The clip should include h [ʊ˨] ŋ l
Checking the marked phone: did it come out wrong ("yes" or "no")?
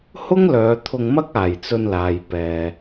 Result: yes